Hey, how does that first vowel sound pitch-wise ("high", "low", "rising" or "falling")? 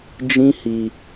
high